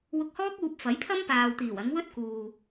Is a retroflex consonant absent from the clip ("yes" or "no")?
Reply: yes